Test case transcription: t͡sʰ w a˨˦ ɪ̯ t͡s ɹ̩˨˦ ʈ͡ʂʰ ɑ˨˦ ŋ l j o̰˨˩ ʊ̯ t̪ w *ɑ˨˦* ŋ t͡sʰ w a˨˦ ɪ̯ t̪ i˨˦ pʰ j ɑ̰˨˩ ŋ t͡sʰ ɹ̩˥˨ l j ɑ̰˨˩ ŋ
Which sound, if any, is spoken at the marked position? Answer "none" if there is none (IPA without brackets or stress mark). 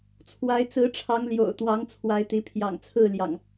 ɑ˨˦